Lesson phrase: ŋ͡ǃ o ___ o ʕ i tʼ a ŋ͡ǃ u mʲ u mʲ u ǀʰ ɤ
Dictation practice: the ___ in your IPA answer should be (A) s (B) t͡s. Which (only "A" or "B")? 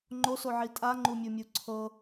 A